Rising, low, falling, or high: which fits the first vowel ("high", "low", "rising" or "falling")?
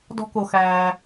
high